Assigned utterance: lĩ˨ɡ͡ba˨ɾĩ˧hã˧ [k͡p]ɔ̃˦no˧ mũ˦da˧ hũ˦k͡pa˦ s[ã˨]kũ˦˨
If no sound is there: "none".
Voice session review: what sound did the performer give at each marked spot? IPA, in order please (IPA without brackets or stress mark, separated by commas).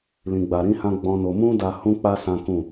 ɡ͡b, ã˦